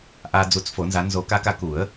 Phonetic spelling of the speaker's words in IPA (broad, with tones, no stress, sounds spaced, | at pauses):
ʔ a˨ d͡z u˨˦ t͡s f o˨˩˦ n z a˨˦ n z o˨˩˦ k a˨˦ k a˨˦ k u˨˩˦ ə̯